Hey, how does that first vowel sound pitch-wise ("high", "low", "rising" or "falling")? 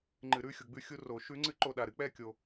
low